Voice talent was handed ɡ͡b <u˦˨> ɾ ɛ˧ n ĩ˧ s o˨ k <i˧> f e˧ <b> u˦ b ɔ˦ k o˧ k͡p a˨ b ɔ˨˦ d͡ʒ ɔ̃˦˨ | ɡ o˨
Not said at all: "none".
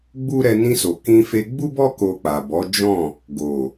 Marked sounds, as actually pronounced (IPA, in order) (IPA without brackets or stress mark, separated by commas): u˦, ĩ˧, ɡ͡b